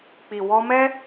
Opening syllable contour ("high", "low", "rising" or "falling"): low